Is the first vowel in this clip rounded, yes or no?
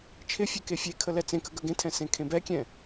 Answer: no